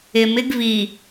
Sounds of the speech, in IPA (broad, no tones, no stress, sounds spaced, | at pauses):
ɪ m ɪ ɡ v i